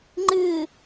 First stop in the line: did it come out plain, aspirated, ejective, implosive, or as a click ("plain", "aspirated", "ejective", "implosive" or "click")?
click